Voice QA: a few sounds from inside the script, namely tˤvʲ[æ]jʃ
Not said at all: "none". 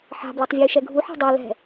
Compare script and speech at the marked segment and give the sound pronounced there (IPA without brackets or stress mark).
œ